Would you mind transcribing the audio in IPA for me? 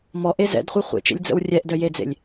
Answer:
m ɔ ʔ e z ɛ̰ d χʷ e χʷ ḛ t͡ʃ ḛ lʲ d͡z ə̰ w rʲ ɛ ʔ d œ j e d͡z ḛ lʲ

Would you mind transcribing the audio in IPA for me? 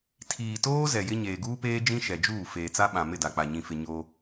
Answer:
tʰ iː˨ t oː˦ z ɛ˨ j ɪ˦ ɲ eː˨ ɡ uː˦ p eː˦ d͡ʒ ĩ˦ ʃ ɛ˨ d͡ʒ uː˦˨ f eː˨ t͡s a˦ ɓ ã˨ m ɪ˦˨ d a˨ k͡p a˨ ɲ ĩ˨ f ɪ˨ ɲ oː˦

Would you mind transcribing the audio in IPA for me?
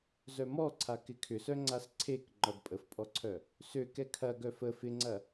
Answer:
z œ m ɔ ǀʰ a k ɪ kʰ ʏ s œ ŋ͡ǀ a s ǀʰ e k ŋ͡ǃ ɔ d pʼ ə f pʼ ɔ ǀʰ œ | s ø k ɛ kʰ ɐ ɡ œ f ə f ɪ ŋ͡ǀ ɐ

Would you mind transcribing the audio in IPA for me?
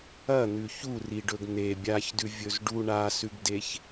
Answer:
ɐ n̪ ʉ ç u r i ɖ ɵ ɡ n̪ e bʲ a ç d ʉ vʲ ɵ z ɖ u ɳ a s ʉ ɡ d e ç

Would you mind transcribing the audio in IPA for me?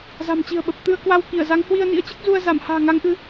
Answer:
z a̤˨˩ m t͡ɕ i̤˨˩ ə̯ ɓ ə˨˩ p̚ t̪ ɨ˧ ə̯ k w a˧ w k i˧˩ ə̯ z a˨˦ ŋ h w i˧ ə̯ n ḭ˧˥ ə̯ t͡ɕ ɨ˦˥ k̚ z u˧ ə̯ z a˧˩ m h a̤ː˨˩ ŋ a˨˦ ŋ ʔ ɨ˨˦

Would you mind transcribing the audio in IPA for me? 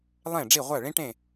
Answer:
lˠ ẽ˥˨ ɖ͡ʐ i˥˨ ʁʷ æ˥˨ ɭ ĩ˥ ʈ ẽ˥˨

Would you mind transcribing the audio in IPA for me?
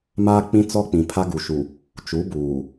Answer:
m aː˦ k͡p ĩ˦ t͡s ɔ˦ k͡p ĩ˨ pʰ a˦ ɡ u˨ ʃ u˨ | t͡ʃ u˨˦ b uː˨

